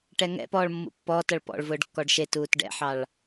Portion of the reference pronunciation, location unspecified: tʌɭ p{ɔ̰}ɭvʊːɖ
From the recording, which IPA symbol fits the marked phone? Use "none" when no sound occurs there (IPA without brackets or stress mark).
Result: ɔ̰